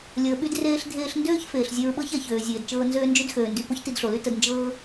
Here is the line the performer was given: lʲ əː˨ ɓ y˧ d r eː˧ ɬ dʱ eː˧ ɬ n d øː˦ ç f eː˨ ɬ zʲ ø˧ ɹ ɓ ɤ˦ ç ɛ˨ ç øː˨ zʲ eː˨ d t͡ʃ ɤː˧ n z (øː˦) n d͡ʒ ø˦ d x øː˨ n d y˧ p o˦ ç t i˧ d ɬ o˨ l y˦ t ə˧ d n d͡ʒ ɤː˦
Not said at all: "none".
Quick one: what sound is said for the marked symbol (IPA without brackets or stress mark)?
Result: øː˦